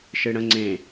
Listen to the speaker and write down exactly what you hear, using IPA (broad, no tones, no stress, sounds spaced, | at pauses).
ʃ ɨ ɽ ə̃ ŋ͡ǀ ẽ